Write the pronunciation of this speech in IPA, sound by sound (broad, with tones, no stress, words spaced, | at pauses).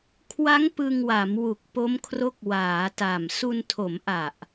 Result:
kʰwa˦˥ŋ pɯ˧ŋwa˩˦mwu˨˩k̚ po˦˥mkʰro˦˥k̚ waː˩˦ta˨˩m su˧ntʰo˩˦mʔa˨˩ʔ